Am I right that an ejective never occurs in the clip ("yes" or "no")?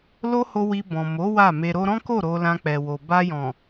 yes